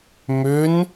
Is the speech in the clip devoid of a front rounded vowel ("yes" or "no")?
no